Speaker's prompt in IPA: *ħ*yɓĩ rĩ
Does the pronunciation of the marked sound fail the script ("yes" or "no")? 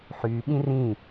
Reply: no